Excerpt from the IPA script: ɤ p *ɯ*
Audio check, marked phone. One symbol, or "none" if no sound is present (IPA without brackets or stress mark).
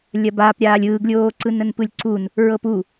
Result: u